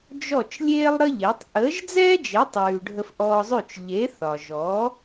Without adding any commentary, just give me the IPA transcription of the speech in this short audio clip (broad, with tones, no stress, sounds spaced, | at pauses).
d͡ʒ ɔ˥˩ t͡ʃ lʲ eː˥ lˠ ɾ ə˥ ʎ e˩˥ tˤ ʔ əː˩˥ ʒ d͡z ɛː˥ d͡ʒ e˩˥ tˤ ʉː˩ ɖʱ ə˧ f ʔ ɔ˧ zˤ ʉ˥˩ t͡ʃ ʎ e˩˥ θ ɒ˩ ʒ ɔː˩˥